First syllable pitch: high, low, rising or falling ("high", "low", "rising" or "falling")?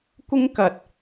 high